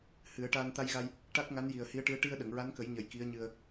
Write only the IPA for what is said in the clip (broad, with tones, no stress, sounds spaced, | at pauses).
h ɨ˨˩˦ ə̯ ʈ aː˧ n t̪ a˧ j ɣ a˧ j | ʈ a˦˥ k̚ ŋ a˧˥ n j i˨˩ ə̯ h i˧˥ ə̯ ʈ ɨ˧˥ ə̯ ʈ i˧ ə̯ ɗ ə˨˩˨ ŋ ɹ a˧˥ n k ə˨˩˦ j ɲ ə˨˩ j k i˧˥ ə̯ ɲ ɨ˧ ə̯